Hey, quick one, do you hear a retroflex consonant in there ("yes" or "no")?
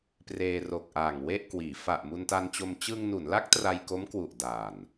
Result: no